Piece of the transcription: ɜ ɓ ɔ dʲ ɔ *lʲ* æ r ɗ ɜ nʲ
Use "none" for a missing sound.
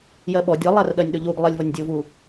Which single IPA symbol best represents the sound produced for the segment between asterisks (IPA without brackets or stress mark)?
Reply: lˠ